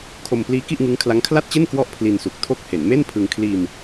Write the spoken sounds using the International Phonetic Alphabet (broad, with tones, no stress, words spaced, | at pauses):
kʰo˧mpliː˦˥ ki˥˩ʔŋɯ˦˥ŋ kʰla˦˥ŋ kʰla˥˩t̚t͡ɕe˥˩n kwɔ˦˥ʔ pʰli˧nsu˨˩k̚tʰo˥˩k̚ he˩˦nme˥˩npʰɯ˧ŋ kʰliː˧m